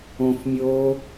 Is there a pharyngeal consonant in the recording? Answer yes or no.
no